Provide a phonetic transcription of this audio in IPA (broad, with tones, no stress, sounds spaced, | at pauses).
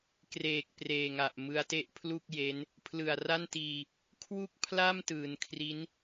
k r eː˨˩ k̚ p r eː˨˩ ŋ a˨˩ ʔ m ɯ˦˥ a̯ t e˥˩ ʔ pʰ l u˥˩ k̚ j e˦˥ n | pʰ l ɯ˨˩ a̯ r a˥˩ n t iː˧ | kʰ w u˥˩ k̚ pʰ l a˥˩ m t ɯː˩˦ n kʰ r i˦˥ n